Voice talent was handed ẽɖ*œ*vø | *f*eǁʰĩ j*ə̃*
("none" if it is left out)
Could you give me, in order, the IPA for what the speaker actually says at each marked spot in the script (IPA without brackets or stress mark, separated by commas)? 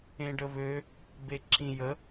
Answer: ə, b, ə